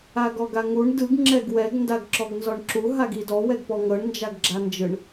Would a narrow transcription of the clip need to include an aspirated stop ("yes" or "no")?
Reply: no